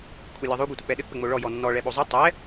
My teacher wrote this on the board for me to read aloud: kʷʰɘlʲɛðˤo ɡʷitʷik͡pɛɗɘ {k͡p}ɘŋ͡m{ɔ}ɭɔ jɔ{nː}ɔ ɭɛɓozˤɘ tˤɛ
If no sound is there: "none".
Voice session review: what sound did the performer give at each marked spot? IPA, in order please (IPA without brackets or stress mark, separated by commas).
k͡p, o, nː